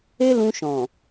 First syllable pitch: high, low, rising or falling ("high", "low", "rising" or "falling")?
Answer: high